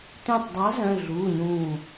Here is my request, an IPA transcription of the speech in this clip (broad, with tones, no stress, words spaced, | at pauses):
t̪ẽ˧˩tˤdˤɑ˨˥ zœ̃˩˧˩ɮuː˩˧˩ɲũː˧˩